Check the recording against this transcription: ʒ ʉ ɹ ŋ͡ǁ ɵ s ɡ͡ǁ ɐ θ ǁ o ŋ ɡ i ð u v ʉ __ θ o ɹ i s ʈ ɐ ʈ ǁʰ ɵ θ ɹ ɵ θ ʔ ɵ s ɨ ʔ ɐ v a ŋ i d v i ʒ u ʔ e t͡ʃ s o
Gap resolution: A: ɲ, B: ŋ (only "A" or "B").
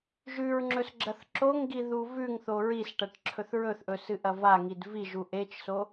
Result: B